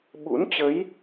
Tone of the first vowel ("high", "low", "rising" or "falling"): rising